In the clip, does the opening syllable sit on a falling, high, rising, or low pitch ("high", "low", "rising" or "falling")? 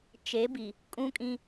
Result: rising